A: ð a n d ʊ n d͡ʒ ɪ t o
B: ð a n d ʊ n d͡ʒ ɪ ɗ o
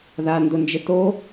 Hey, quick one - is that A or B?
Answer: A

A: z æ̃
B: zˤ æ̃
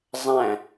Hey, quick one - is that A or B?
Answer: B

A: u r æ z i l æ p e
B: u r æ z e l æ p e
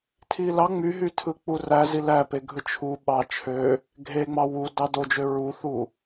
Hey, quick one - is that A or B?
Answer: A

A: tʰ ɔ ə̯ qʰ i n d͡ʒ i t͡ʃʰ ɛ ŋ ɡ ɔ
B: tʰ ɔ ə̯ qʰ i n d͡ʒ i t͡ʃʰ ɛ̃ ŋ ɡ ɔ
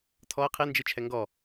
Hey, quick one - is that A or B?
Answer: A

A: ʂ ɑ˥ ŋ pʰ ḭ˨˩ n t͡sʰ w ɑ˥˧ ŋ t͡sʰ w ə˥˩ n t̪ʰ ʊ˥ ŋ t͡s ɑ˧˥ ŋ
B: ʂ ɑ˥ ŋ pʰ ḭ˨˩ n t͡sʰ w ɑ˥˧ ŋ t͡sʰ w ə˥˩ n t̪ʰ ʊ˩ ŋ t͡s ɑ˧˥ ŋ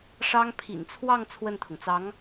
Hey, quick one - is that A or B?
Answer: B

